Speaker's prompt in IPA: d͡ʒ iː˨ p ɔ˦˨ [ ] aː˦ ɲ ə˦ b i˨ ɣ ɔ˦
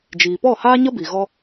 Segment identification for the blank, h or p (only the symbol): h